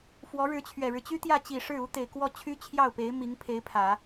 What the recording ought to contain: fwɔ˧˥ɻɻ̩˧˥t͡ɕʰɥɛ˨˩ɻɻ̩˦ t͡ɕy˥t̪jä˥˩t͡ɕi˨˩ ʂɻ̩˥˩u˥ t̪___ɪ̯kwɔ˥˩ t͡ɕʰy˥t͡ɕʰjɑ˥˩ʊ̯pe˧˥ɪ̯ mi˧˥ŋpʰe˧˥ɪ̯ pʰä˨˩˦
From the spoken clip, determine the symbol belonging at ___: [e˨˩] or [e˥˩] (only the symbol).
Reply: e˨˩